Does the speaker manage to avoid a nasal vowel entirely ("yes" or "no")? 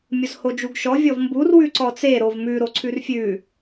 yes